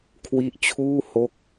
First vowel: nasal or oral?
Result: oral